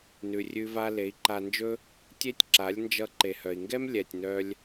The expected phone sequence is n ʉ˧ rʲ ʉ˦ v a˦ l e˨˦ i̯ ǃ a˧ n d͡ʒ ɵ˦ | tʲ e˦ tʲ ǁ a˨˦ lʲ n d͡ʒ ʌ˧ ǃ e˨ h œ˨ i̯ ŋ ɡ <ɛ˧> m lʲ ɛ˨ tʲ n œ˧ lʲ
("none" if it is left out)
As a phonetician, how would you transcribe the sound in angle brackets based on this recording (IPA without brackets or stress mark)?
ɛ˦